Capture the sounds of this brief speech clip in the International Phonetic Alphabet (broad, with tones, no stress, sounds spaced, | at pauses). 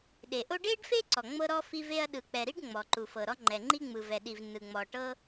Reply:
ɗ e˩ ʔ o˥ ɖ e˥ ɖ f e˥ ǀ ɔ˩ ŋ͡m ɤ˥ ɾ ɔ˥ f i˥ v e˥ ɐ̯ ɗ ɯ˩ k͡p ɛ˩ ɾ i˥ ɖ ŋ͡m ɔ˩ ǃ u˩ f ɤ˩ ɾ ɔ˥ ŋ͡ǃ ɛ˩ ŋ͡ǃ i˥ ŋ͡m ɯ˩ v ɛ˩ ɗ i˩ v n ɯ˩ ŋ͡m ɔ˩ ʈ ɤ˥